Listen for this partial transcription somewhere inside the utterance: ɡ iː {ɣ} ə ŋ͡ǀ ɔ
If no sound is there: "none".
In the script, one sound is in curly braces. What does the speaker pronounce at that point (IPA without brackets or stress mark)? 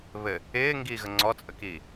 ɣ